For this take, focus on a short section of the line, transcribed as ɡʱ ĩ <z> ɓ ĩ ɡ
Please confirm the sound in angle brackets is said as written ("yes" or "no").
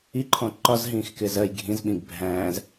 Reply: yes